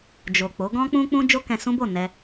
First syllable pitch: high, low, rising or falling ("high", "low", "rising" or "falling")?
low